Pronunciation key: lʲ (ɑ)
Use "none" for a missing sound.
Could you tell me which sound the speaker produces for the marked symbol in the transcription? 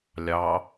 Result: ɑ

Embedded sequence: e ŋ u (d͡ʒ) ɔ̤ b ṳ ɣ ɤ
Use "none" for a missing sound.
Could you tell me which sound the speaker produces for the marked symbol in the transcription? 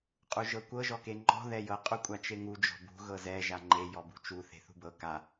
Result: d͡ʒ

